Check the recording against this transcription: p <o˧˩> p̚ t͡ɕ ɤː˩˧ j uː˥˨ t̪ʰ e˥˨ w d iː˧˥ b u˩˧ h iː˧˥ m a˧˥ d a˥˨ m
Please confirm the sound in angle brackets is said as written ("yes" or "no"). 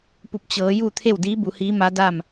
no